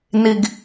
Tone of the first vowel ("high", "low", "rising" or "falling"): high